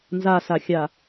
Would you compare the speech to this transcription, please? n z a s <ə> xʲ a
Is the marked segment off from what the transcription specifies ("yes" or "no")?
yes